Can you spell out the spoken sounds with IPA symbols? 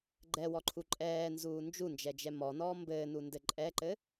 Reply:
ɡ͡ǃ ɛ w ɔ ǃʰ u ǃʼ ɛː n z uː n d͡ʒ u n d͡ʒ ɛ d͡ʒ ɛ m ɔ n ɔː m b ɘː n u n d ɘ ǃʼ ɛ ǃ ɘ

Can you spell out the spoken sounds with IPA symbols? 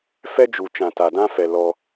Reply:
f ɛ˦ d͡ʒ u˨ t͡ʃ ã˨ t a˨ d ã˦ f ɛ˨ l ɔ˧

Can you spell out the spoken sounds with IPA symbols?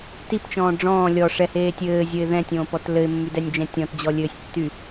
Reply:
t i p t͡ʃ ɔ̃ː ɖ͡ʐ ɔ̃ː lʲ ɔ ʂ ɛ h eː tʲ ɘː zʲ ə ɪ̯ ð ɛ̃ tʲ õː p ɔ t l ɘ ɪ̯ mː y d ɛ nʲ d͡ʒ ɛ̃ tʲ ɔ̃ t d͡ʑ ɔ lʲ ɘː sʲ tː y

